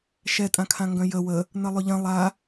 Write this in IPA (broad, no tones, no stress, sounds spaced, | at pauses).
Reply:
ʃ ɛ tʼ ã kʰ ã ŋ ɡ œ̃ j ə w ə | n ə lˠ ʏ ʎ ɐ̃ lˠ a